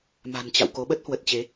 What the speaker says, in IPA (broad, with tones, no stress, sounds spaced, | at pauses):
m a̤˨˩ n t͡ɕ a̰˧˨ w k o˨˦ ɓ ə˦˥ t̚ h w ə˨˩ t̚ t͡ɕ e˨˦